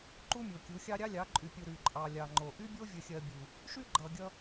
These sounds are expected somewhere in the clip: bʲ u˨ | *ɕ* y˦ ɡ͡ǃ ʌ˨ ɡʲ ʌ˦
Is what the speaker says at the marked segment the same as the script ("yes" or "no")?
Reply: no